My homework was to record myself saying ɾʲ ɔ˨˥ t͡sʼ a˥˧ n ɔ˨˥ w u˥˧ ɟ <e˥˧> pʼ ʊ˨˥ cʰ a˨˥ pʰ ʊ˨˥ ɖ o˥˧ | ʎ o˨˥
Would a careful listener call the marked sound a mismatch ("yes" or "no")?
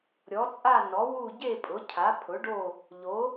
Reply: no